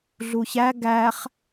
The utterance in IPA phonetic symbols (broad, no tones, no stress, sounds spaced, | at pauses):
ɮ u ç æ ɡ æ χ